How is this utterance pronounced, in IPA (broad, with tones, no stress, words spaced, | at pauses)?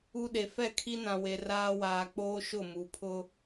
u˦ɗe˨ fɛ˦˨kʰi˦nã˨we˨ raː˦waː˨k͡poː˦ ʃʊ˦˨mu˨ pʰʊ˦